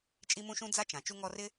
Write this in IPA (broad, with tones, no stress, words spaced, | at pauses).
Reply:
t͡ʃʼi˥mũ˥ʃũ˥ d͡za˥t͡ʃã˩ t͡ʃu˦ŋɔ˦rɪ˥